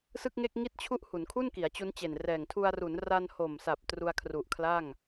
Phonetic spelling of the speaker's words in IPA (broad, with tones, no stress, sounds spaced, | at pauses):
s ɯ˥˩ k̚ ŋ e˥˩ k̚ ŋ i˥˩ t̚ t͡ɕʰ u˥˩ ʔ h u˩˦ n kʰ u˥˩ n k i˩˦ a̯ t͡ɕ u˦˥ n t͡ɕ e˨˩ n r ɛː˨˩ ŋ tʰ u˧ a̯ r u˩˦ n r a˧ n h o˨˩ m s a˨˩ p̚ t r u˧ a̯ kʰ r u˨˩ ʔ kʰ l a˥˩ ŋ